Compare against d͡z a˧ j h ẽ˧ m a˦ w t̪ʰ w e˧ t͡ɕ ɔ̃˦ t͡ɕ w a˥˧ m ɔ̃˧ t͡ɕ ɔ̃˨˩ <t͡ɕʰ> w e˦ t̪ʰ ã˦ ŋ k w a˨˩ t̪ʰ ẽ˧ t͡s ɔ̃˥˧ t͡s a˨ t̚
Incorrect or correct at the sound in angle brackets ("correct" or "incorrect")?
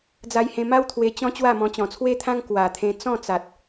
incorrect